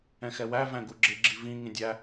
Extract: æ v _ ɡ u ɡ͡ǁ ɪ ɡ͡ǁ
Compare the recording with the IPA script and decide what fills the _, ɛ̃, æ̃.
æ̃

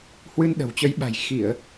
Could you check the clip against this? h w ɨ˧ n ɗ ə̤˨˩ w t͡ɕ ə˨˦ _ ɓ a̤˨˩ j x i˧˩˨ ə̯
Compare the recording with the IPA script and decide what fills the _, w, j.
j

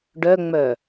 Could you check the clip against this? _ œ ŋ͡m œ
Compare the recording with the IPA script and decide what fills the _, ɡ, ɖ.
ɖ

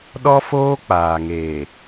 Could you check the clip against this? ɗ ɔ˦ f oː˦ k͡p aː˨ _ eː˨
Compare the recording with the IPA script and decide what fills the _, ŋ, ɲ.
ŋ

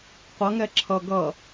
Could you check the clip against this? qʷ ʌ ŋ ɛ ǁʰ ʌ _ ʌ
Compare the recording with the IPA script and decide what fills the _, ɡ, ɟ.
ɡ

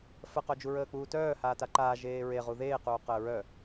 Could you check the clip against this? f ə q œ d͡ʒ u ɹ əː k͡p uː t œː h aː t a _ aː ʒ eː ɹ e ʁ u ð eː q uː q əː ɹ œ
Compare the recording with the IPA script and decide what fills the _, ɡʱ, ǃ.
ǃ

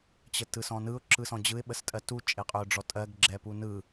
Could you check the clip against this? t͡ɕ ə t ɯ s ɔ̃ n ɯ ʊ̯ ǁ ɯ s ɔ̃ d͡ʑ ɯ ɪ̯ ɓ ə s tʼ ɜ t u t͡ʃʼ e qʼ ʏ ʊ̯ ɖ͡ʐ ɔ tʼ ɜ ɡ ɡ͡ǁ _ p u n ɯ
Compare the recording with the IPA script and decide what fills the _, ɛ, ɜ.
ɛ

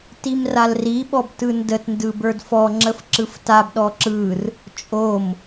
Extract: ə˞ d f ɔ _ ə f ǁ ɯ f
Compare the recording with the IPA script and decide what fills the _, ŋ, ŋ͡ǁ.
ŋ͡ǁ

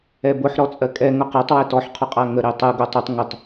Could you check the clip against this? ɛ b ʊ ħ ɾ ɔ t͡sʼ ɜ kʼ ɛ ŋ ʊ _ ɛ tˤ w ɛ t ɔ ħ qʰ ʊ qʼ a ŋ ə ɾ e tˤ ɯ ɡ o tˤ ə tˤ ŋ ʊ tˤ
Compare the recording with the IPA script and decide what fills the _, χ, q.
q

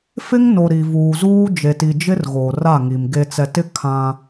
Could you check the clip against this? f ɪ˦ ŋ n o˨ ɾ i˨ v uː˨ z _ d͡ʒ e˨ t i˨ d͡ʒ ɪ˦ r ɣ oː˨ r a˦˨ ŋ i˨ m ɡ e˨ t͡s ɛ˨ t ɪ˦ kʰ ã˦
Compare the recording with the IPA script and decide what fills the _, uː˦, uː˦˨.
uː˦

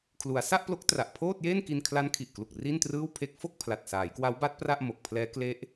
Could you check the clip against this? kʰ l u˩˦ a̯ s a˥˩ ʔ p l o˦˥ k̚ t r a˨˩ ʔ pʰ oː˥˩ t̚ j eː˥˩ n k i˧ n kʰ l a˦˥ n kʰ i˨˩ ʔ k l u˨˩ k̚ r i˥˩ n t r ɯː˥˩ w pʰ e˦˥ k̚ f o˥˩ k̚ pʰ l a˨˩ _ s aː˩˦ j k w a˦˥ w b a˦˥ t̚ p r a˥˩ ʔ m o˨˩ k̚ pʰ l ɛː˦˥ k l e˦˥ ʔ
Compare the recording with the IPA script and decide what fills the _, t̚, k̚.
t̚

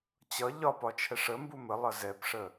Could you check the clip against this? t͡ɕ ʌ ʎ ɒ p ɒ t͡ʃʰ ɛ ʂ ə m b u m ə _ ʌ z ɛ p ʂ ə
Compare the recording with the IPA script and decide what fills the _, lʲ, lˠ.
lˠ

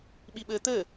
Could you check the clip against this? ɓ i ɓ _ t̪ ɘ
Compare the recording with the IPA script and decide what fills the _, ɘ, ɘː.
ɘː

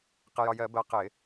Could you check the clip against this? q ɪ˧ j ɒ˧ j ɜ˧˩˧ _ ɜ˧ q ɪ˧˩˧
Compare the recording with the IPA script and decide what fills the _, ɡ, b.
b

